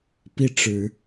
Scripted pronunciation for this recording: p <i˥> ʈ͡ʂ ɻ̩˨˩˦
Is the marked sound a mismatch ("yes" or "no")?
yes